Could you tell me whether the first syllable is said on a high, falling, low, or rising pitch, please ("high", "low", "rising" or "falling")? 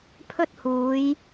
high